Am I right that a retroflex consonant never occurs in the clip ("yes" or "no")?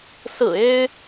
yes